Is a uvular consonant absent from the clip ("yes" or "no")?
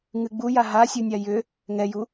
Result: yes